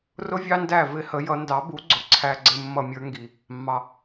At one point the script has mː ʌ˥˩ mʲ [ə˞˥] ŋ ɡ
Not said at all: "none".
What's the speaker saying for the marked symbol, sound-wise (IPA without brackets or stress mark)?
ə˞˥